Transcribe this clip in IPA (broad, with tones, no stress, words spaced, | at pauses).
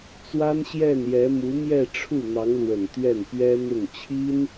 t͡swa˥nɕjɛ˥˩njɛ˧˥ mu˧˥mjɛ˥˧ ʈ͡ʂʰu˥˩n̪ɑ˧˥ŋlwə˨˩n t̪ɥɛ˥˩npɥɛ˥ n̪ʊ˥˩ŋ t͡ɕʰi˥n